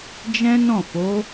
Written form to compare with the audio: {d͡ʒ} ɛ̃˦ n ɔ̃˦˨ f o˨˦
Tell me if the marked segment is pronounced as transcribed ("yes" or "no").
yes